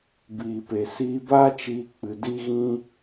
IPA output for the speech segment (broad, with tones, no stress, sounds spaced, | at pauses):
b iː˨ p e˨ s iː˧ b aː˦ t͡ʃ iː˧ k͡p ɨ˧ d i˦ ɣ ĩ˦